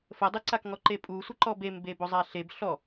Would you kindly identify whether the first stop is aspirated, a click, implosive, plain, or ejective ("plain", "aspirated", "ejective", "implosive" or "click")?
plain